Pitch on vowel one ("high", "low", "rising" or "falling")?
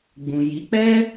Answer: low